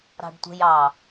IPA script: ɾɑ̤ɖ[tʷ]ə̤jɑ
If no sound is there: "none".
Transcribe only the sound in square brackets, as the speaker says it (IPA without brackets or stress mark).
tʷ